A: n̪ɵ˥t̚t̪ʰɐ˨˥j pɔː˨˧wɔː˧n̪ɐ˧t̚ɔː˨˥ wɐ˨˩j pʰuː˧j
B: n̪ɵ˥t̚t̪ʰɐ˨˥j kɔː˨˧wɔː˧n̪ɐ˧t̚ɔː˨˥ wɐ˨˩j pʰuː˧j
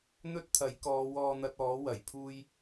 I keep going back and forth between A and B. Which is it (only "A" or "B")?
B